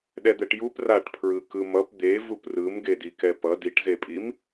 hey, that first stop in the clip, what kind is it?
implosive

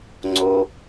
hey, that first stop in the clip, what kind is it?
click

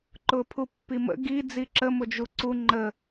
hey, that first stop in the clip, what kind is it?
click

